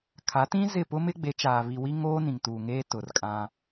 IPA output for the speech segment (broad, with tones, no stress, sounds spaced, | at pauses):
kʰ a˨˦ t ĩ˦ z ɪ˦˨ p ʊ˦ m ɪ˦ ɡ͡b e˨˦ t͡ʃ aː˨ β i˨ w i˦ ŋ oː˦ n ĩ˨ ŋ t uː˨ ŋ eː˦ t ʊ˨ r kʼ ã˦